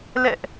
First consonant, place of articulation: alveolar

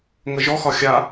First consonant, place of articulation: velar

